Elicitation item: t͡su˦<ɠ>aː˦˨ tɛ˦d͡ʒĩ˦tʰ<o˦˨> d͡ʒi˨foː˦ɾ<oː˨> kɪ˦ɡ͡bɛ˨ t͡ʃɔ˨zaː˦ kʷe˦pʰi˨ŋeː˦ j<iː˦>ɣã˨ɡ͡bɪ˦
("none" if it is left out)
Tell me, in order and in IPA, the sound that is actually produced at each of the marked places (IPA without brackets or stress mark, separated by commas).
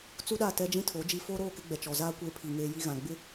ɗ, o˨˦, oː˦˨, i˦